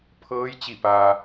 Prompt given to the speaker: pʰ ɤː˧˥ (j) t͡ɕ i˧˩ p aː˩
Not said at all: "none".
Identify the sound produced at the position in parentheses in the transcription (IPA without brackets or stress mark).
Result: j